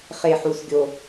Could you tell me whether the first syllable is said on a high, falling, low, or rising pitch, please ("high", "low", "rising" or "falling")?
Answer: low